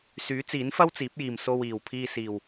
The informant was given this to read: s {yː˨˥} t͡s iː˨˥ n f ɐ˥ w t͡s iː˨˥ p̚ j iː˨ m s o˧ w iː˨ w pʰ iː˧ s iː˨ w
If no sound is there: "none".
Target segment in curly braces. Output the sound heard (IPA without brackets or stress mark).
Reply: yː˨˥